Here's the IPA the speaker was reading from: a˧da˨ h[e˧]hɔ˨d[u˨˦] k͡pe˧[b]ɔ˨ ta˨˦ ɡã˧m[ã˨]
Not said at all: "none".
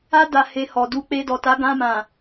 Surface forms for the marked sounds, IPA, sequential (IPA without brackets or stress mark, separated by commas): e˧, u˨˦, d, ã˨